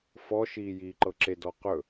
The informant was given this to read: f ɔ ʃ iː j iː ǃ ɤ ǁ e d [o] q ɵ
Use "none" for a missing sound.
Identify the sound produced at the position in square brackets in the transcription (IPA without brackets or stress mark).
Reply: ɔ